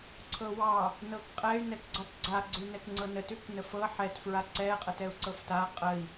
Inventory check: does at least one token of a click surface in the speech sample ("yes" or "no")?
yes